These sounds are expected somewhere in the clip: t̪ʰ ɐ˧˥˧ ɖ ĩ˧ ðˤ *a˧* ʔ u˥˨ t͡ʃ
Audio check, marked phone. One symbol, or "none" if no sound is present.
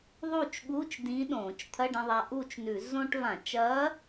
a˧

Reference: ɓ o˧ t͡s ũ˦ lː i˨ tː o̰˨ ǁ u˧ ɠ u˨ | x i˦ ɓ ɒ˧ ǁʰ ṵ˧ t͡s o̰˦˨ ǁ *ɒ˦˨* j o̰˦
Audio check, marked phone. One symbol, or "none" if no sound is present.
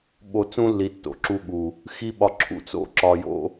ɒ˧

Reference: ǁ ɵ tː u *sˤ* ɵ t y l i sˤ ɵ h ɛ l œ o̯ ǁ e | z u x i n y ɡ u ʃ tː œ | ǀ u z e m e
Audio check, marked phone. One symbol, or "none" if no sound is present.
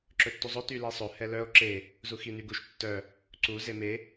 zˤ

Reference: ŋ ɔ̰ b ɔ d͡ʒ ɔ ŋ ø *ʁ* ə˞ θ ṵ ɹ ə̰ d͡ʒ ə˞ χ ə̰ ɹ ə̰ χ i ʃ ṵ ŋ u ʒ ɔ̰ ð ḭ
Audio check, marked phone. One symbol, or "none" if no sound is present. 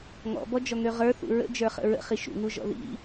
ʁ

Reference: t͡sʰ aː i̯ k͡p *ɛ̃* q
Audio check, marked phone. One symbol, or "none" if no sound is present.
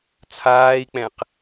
ɛ̃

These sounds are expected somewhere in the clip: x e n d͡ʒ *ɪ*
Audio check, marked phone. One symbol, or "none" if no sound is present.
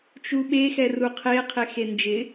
ɪ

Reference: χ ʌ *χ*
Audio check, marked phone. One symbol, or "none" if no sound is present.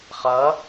none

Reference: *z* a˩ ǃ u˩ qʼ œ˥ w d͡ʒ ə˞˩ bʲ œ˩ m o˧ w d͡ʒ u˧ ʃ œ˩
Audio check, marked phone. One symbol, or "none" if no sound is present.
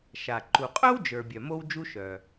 ʃ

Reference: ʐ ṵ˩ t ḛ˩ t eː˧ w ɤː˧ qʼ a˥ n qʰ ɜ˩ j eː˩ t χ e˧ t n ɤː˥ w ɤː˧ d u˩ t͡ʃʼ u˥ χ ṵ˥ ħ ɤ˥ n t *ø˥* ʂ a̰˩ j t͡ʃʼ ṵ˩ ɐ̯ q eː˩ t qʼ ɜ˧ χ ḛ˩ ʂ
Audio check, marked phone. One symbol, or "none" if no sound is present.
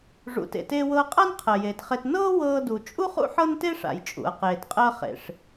e˥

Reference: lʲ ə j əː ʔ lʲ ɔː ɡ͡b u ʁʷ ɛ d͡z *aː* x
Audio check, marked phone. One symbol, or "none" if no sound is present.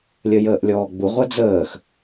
əː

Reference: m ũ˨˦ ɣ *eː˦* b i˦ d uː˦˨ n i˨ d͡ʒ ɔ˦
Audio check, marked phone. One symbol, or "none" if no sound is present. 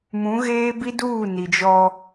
eː˦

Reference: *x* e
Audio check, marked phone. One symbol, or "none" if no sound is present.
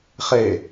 χ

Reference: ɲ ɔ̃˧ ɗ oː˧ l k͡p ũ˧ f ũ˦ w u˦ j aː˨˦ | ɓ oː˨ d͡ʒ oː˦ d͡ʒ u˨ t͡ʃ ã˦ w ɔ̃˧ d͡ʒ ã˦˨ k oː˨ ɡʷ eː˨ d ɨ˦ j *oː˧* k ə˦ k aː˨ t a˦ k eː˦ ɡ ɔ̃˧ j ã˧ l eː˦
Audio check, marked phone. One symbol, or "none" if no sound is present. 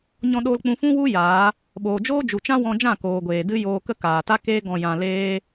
oː˧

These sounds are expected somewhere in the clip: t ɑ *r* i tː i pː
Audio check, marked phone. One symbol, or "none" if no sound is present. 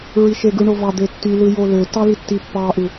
l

